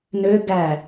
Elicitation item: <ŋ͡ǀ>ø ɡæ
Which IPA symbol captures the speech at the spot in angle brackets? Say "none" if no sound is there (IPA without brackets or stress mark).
n